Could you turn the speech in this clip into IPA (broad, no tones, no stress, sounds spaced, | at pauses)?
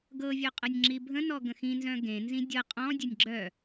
ɡ ɤ vʲ œ qʼ ɤ nʲ ŋ͡ǁ i bʱ ə̃ n ɔ ɡ ə̃ x ĩ n z œ̃ ɡ ẽ n z ĩ dʲ ɤ qʼ ɔ̃ dʲ ə nʲ ɡ͡ǁ œ